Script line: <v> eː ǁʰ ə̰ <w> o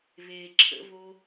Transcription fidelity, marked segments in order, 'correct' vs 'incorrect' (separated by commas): incorrect, incorrect